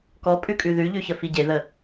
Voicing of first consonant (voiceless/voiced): voiceless